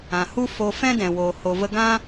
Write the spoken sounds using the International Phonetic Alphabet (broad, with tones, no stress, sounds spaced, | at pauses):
ã˨ h u˦ f o˧ f ɛ̃˦ d ɛ̃˨ w oː˨ h o˨ v ə˧ ɡ ã˦